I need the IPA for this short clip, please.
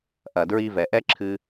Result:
ʔ ɐ˩ d ɹ i˧ v ɛ˩ ʔ ɛ˥ ǁʰ ɨ˧

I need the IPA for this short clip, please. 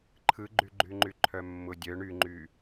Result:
ǃʰ ɯ ɡ͡ǃ y ɡ͡ǃ y ŋ͡ǃ y ǃʰ œ mː ʊ dʲ œ ɳ y ŋ͡ǃ y

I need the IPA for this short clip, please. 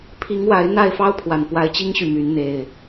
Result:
pʰ i˨˦ ŋ w a˨˦ ɪ̯ n̪ a˥˨ ɪ̯ f ɑ˦ ʊ̯ pʰ w a˨˩ n p w a˨˦ ɪ̯ t͡ɕ i˦ ŋ ɕ y˨ m y˨˦ n n̪ e˨˩ ɪ̯

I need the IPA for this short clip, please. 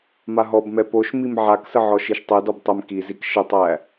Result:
m a ɦ ɔ b m ɛ p o ʃ m i m ʕ a k s ə ʕ ɔ ʃ i ʃ tˤ ɛ d ɔ b tˤ ɛ m k i z i k ʃ ə tˤ æ

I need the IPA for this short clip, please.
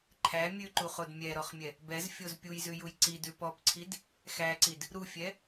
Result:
ǃʰ æ mʲ ʉ ǃ u χ o d mʲ ɛ ɾ ɔ χ mʲ ɛ | b ɛ z fʲ o z pʲ u j z ʉ j u j ǀ i d ʉ p ɔ p ǀʰ i d | x æ ǀ i d | ɾ u fʲ ɛ

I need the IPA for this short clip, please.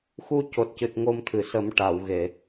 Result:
x u˧ c o˨˩ t̚ c ɨ˨˩ t̚ ŋ o˧ m t̪ʰ ɨ˨˩ s ə˨˩˦ m ʈ a˨˩˨ w ɣ e˨˩˨

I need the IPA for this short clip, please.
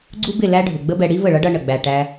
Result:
ɡ͡ǀ u˦ b ɪ˦˨ l æ˦ ɖʱ ʊ˨ ɡ͡b ə˦ b ɛ˧ ɽ i˦ v ə˦˨ ɭ ʌ˦ ɖ ʌ˧ ɳ ə˨ ɡ͡b æ˧ ʈ æ˦

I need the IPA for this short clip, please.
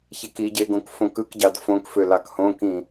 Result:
ç e k i ɟ e ɡ õ k f õ k ɯ k ɟ ɑ d f õ k f ø l ɑ k h õ k ĩ

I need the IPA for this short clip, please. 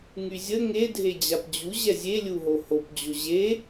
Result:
ŋ y zʲ ə ŋ e dʱ e d͡ʑ a p d͡ʑ u ʑ ɛ zʲ e lʲ u ɦ o h o p d͡ʑ o ʑ e

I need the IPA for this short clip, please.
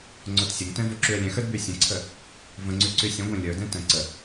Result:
ŋ͡ǀ o t sʲ ə ŋ t ɛ̃ v o ǁ y ə̯ lʲ ɛ̃ x ə˞ d b y sʲ ə̃ ǀʰ ə | v ə̃ ŋ͡ǀ y ǀ y sʲ ə̃ ɡʷ ɛ̃ lʲ ə˞ d ɛ̃ t ə̃ ǀ ə

